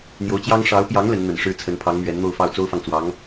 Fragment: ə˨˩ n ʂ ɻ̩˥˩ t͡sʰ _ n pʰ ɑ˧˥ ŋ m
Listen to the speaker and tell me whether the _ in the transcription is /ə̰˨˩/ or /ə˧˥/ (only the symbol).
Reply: ə˧˥